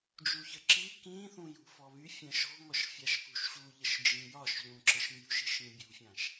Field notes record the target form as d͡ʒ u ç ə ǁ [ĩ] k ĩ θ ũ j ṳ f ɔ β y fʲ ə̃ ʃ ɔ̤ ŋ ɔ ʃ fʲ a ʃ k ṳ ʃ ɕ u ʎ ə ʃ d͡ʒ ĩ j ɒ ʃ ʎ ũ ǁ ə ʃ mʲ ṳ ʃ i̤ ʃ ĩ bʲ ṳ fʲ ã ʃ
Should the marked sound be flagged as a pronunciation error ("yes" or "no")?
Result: yes